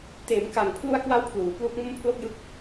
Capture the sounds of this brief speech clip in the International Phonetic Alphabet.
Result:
t eː˩˦ m k a˨˩ ŋ pʰ l u˧ a̯ k w a˦˥ w pʰ l uː˩˦ p l u˦˥ k̚ m o˥˩ m pʰ l o˥˩ k̚ j ɯ˦˥ k̚

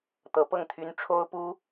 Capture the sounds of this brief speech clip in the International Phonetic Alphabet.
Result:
t̪ ɤ˧˥ p ɤ˥˩ ŋ t̪ʰ y˥ n ʈ͡ʂʰ o˥ ʊ̯ p u˥

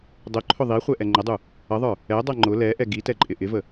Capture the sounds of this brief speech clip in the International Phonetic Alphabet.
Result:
dˤ ʊ ǃʰ ʊ ðˤ i χʷ ɛ ʔ ɛ ŋ͡ǃ ə dˤ u | ʌ ðˤ ə˞ | ɛ dˤ ʌ ŋ͡ǃ ʊ l ɛ ʔ ɛ ɡ i t ɛ ǃʼ ɪ ʔ ɪ v ə

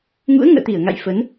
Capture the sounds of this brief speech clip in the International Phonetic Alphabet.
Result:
ŋ ṵ˧˥ ə̯ ŋ ə̰ː˧˨ t̪ i˧˩ ə̯ ŋ a̰˧˨ j f ə˨˦ n

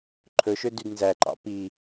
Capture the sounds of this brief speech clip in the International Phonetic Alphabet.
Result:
ǃʰ ɵ ʃ ø d y d n z æ ǃ ɑ̰ p i

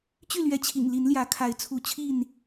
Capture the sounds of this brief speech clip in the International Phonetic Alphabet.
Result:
t͡ɕ y˥˨ l ɥ ɛ˨˦ t͡ɕʰ ḭ˨˩ ŋ l i˨˦ n l j ä˨˦ kʰ a˨˦ ɪ̯ t͡sʰ u˨˦ t͡ɕʰ i˥˨ n

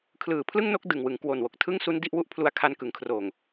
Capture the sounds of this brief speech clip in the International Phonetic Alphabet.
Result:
kʰ l ɯː˨˩ pʰ l ɯ˥˩ ŋ n o˦˥ k̚ d ɯ˨˩ ŋ w ɯ˩˦ ŋ k w o˨˩ n w o˨˩ k̚ tʰ ɯ˥˩ ŋ s u˦˥ n d i˥˩ ʔ w u˥˩ ʔ pʰ l u˦˥ a̯ kʰ a˦˥ n k ɯ˩˦ ŋ kʰ r oː˨˩ ŋ

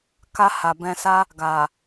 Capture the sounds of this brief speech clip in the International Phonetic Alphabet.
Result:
k a˧ h a˨ b ɛ̃˧ s a˦ | ɡ a˨

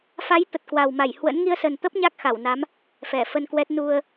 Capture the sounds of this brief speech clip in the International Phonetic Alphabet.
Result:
f a˨˦ j t̪ ə˨˩ t̚ k w a˨˩ w m a˧˩ j h w ə̰˧˥ n ŋ i˧ ə̯ s ə˨˩ n t̪ ə˦˥ p̚ ɲ a˦˥ k̚ x a˧˩ w n a˨˦ m | f ɛ˧˩ f ə˧ n k w ɛ˦˥ t̚ n u˧ ə̯

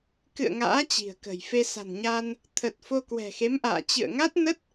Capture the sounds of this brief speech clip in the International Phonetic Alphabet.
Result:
k ɨ̰˧˨ ə̯ ŋ a̰ː˧˥ t͡ɕ i̤˨˩ ə̯ k ə̤˨˩ j f e˧ s a̤˨˩ n ɲ a˧ n | t̪ʰ ə˨˩ t̚ f o˧ k w ɛ̤˨˩ x e˨˦ m ʔ a̰ː˧˨ t͡ɕ ɨ̰˧˨ ə̯ ŋ a˦˥ t̚ n ə˦˥ t̚

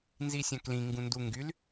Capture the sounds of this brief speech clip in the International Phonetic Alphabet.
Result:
n z i sʲ ã k l ĩ ŋ ɡ ũ n d u ŋ ɡ y l

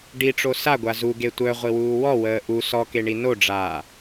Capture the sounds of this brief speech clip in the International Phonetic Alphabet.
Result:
ɖ i ʈ͡ʂ o s a ɡʷ a z u ɡ e tʷ œ ʁʷ i w uː w ɔ w əː ʔ u s ɔ k e ɳ i n o ɖ͡ʐ aː

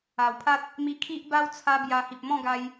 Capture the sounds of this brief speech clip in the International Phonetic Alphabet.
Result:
a˨˩ w pʰ a˦ t̚ | m i˧ kʰ i˦ ʔ b a˦ w t͡sʰ a˦ b j a˧ h i˨ p̚ m ɔ̃˥˧ ɡ a˧ j

